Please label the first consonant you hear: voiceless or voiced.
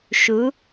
voiceless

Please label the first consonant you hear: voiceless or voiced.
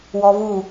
voiced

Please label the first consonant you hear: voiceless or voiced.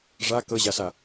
voiced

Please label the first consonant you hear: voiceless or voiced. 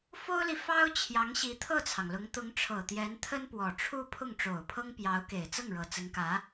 voiceless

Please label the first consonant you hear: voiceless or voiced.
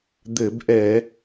voiced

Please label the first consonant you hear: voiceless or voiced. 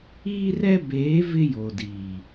voiced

